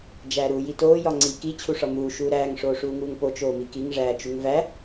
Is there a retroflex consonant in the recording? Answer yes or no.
yes